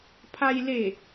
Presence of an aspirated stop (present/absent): present